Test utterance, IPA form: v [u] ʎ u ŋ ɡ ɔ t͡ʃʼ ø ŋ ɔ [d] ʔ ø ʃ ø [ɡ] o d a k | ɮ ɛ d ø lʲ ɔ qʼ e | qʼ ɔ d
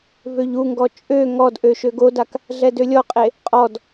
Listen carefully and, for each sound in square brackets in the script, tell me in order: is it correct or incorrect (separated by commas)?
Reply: incorrect, correct, correct